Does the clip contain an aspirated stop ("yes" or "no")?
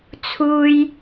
yes